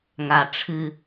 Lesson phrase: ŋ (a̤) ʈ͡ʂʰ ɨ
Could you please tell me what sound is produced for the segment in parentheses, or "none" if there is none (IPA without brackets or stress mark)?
a